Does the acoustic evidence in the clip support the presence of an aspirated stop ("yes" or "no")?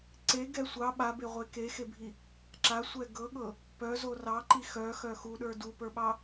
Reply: no